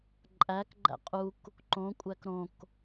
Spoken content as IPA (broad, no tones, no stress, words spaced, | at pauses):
ǃʼækɡ͡ǃæ̰ qʼuk | ǃõkʷʼæk ɾõk